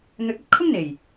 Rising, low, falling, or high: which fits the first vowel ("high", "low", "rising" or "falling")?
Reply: rising